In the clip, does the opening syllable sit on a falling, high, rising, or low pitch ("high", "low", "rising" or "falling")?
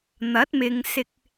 rising